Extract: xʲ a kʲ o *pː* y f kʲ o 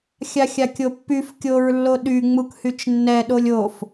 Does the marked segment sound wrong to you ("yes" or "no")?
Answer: no